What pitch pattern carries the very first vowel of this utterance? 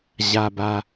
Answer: low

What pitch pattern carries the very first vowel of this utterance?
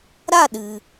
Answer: falling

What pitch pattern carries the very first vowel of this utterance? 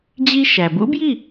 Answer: high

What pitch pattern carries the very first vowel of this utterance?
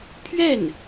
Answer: falling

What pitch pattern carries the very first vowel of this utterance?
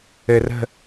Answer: low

